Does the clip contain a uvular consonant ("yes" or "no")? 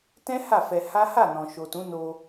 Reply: no